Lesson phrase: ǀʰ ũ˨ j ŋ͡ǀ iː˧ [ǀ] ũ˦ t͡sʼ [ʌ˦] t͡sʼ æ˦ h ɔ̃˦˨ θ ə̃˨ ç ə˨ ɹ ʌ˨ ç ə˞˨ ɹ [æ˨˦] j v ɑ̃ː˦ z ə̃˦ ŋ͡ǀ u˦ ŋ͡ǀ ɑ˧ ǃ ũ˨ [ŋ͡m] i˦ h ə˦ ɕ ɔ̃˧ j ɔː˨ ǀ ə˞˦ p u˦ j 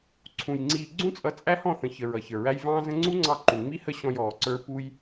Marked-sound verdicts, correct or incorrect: incorrect, incorrect, incorrect, correct

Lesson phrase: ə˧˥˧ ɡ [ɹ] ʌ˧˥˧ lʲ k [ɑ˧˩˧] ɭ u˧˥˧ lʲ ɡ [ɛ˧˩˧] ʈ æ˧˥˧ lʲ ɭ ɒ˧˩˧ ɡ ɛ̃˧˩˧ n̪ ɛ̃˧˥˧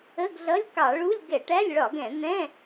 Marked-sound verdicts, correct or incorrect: incorrect, correct, correct

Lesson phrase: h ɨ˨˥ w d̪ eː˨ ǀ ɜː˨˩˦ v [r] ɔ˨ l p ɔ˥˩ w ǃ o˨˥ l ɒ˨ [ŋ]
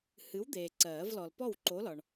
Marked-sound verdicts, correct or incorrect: incorrect, incorrect

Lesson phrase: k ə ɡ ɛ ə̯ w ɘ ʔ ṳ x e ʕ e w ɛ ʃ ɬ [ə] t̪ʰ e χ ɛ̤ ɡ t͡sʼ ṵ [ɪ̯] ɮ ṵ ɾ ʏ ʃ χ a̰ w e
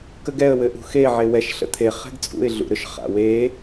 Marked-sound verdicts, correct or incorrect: incorrect, correct

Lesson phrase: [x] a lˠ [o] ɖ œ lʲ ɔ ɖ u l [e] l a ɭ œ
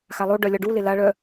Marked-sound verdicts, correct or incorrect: correct, correct, correct

